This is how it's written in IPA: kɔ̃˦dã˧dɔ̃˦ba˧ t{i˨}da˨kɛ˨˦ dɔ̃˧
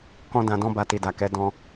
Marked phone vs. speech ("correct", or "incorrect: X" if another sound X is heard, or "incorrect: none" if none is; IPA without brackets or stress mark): correct